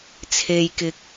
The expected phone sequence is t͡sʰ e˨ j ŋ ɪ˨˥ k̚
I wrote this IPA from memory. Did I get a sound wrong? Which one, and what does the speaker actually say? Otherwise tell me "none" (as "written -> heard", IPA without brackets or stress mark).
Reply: ŋ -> k